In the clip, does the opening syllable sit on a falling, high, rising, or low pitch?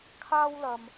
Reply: high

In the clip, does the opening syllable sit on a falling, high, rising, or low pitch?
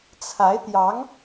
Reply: rising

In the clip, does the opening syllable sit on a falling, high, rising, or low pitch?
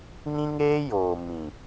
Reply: high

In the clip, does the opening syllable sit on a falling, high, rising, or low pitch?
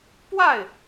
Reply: falling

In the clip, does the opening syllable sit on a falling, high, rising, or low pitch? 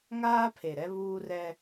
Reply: high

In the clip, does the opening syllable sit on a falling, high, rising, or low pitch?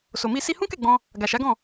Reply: low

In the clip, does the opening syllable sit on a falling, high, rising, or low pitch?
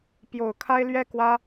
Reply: low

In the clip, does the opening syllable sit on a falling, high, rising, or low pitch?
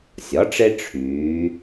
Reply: rising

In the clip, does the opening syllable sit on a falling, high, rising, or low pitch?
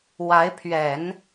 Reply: rising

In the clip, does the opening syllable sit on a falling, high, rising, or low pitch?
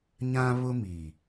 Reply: high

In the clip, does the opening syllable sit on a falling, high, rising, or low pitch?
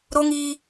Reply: high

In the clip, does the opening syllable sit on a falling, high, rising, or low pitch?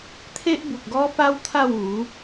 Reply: high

